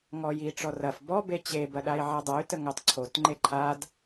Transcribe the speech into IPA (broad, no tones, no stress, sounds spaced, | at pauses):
ŋ ɔ j i ʈ͡ʂ ɔ r ɐ f b ɔ b e t͡ɕ e b ɐ ɗ a i̯ ʕ a dˤ a y̯ t ə ŋ ɐ tˤ ǀʰ o t ŋ͡ǃ e ǃʰ a d